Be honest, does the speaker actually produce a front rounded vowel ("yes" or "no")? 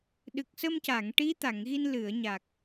no